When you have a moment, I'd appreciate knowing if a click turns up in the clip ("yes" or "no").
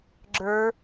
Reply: yes